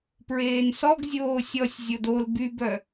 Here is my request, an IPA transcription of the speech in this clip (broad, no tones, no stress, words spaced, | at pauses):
pɹeːnsɔɡ zʲoːsʲɔsʲ zʲodol bybœ